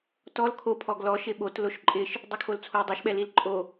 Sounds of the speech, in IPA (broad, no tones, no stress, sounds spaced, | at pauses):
t ɔ l kʰ o pʰ ɔ ɡ l ɔ ʃ ɪ ɓ o t l o ʃ ǃʼ ɪ ʃ | dˤ u kʰ o l t͡sʰ o i̯ dˤ ɛ ʃ ɓ ɛ l i l ǃʼ o